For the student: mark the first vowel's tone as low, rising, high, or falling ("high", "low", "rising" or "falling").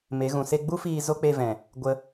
rising